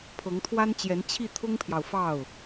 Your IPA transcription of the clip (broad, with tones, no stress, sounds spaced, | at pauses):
pʰ ɤ˧˥ ŋ t̪ʰ w a˥ n t͡ɕ j ɛ˧˥ n t͡ɕʰ i˥˩ t̪ʰ ʊ˥ ŋ pʰ j ɑ˨ ʊ̯ f ɑ˥˩ ʊ̯